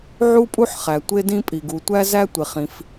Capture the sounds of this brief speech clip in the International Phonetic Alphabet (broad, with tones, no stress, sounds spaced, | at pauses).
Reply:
ʕ u˥ pʼ u˥ ħ χ æ˩ tʷ e˥ d ĩ˥ pʼ i˩ ɡ u˩ tʷ æ˥ z æ˥ tʷ e˩ χ ĩ˩ f